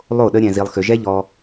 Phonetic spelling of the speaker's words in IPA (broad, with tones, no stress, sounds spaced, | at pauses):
lˠ o˦˨ ɗ ə˦ ɾʲ ɛ̃˧ z i˧ lˠ x ʏ˧ ʒ ɛ˦ ʎ ɔ˧